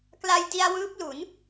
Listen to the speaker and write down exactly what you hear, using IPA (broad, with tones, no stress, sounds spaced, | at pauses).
k l a˧ j d i˧ a̯ w ɯː˦˥ p̚ l u˩˦ n